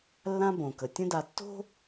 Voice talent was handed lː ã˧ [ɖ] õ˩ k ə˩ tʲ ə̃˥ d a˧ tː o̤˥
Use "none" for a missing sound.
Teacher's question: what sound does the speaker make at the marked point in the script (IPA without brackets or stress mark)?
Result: b